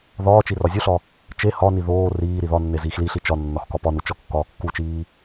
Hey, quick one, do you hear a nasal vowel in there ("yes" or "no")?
no